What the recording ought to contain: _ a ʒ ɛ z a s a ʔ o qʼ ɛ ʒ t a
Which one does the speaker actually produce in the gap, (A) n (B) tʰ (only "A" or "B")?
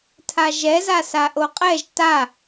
B